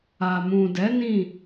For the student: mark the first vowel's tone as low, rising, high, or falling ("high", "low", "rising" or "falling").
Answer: low